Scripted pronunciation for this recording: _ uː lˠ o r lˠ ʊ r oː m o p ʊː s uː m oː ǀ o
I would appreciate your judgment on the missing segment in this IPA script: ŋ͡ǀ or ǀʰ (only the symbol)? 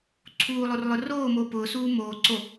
ǀʰ